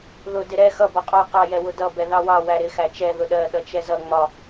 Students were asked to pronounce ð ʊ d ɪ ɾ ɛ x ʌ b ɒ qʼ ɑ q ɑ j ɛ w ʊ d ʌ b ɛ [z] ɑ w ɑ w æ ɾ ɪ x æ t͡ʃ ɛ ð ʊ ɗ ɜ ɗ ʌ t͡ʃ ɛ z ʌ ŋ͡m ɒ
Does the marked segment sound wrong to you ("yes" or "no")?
yes